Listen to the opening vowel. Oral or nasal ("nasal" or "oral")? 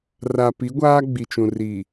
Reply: oral